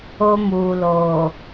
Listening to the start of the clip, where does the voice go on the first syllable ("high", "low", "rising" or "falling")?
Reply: high